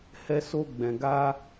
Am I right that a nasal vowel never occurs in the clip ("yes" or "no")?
no